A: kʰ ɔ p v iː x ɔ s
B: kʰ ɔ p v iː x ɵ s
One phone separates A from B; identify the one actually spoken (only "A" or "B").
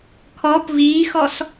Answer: A